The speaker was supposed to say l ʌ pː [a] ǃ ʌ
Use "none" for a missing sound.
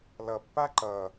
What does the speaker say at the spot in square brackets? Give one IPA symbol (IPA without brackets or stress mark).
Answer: a